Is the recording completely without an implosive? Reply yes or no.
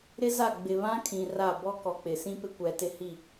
yes